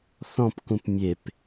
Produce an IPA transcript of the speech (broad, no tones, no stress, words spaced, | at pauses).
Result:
θɔ̃pkũp mʲep